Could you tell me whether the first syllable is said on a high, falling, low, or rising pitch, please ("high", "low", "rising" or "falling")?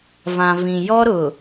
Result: low